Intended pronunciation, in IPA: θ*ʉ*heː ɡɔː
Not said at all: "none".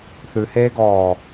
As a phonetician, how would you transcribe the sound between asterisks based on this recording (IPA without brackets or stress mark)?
ʉ